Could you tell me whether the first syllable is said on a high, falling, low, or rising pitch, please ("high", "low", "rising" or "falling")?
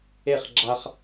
falling